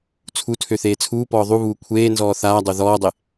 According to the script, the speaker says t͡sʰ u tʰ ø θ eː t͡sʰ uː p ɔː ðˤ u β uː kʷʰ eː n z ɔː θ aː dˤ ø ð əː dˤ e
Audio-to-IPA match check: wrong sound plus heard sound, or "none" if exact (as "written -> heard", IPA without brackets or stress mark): əː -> ɔː